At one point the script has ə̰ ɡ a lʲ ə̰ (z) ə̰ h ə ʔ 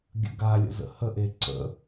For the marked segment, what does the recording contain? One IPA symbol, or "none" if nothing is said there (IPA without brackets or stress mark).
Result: z